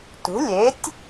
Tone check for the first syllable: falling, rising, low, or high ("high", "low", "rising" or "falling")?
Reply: rising